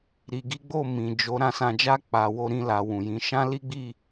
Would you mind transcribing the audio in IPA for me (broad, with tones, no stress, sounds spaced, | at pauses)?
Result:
ɾ i˨ ɡ i˨˦ ɡ͡b o˦˨ m ĩ˨ d͡ʒ o˨˦ ɾ ã˦˨ s ã˧ d͡ʒ a˦ k͡p a˧ w o˦ ɾ ĩ˦ l a˧ w ũ˨ j ĩ˨˦ ʃ ã˦ l i˦ ɡ͡b i˦˨